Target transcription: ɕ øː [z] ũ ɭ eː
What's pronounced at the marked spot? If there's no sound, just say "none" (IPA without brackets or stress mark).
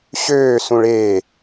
s